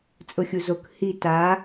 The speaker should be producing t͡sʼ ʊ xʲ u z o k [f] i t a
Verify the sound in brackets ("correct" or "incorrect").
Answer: incorrect